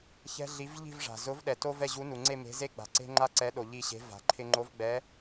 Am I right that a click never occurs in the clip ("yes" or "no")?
no